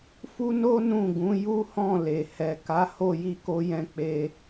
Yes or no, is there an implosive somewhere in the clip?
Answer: no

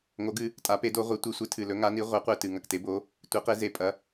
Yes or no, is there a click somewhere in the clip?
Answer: no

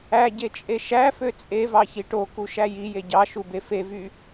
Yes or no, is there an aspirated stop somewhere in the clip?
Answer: no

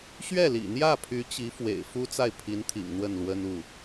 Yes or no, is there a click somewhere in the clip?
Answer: no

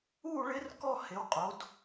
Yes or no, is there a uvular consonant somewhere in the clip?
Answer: yes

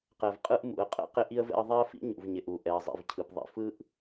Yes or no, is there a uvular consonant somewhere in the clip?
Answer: yes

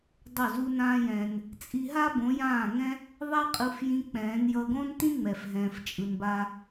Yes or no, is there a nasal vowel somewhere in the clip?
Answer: yes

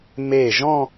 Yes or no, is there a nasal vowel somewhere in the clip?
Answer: yes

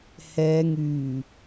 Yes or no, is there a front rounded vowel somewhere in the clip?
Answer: yes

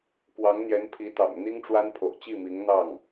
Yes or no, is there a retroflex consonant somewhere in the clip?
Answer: yes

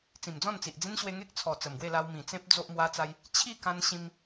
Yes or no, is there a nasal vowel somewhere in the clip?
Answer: yes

